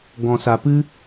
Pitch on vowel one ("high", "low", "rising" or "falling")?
low